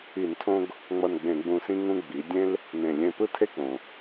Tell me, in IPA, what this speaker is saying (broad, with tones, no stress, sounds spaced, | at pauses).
i˧˩˧ n tʰ õ˦ ɡ | ŋ͡m ʌ˧˩ n ɡ͡b ẽ˧˩˧ ɡ͡b ũ˧˩ s ĩ˦ ŋ ũ˦ ɡ͡b i˩˧ dʲ ẽ˦ l | n ẽ˧˩ lʲ ẽ˧˩ p ɯ˦ tʰ e˦ k͡p õ˩